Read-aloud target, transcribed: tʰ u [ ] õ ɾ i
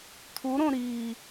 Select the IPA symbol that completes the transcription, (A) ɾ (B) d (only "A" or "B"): A